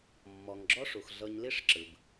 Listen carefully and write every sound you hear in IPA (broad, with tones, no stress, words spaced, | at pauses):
mːɔ˨ŋɡ͡ǁɔ˦ʂu˨x ɮɤ˧ɲli˦ʂ ǁɯ˨b